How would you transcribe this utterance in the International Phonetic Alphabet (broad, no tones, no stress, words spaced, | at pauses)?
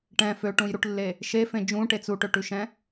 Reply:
ʈɛ̃ føʈũjɾuʈlːe | ʃefẽ d͡ʒũʈet͡s uʈøʈʉʃɛ̃